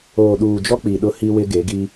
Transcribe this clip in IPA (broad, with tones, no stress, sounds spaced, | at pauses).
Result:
oː˨ ɗ uː˨ d͡ʒ ɔ˦ k͡p i˨ ɗ ʊ˦ h i˦ w ɪ˦ ɡ e˨˦ ɡ i˦